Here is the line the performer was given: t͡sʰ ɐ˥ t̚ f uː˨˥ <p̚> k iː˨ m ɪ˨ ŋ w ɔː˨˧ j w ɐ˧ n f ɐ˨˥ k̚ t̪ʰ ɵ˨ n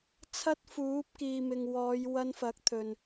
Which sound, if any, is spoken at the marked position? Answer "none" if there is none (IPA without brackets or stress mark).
p̚